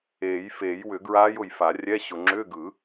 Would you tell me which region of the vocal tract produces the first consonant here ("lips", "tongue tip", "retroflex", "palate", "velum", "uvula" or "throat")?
palate